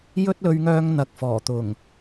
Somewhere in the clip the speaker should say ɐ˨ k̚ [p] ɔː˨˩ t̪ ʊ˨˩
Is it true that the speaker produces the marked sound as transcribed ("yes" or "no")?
no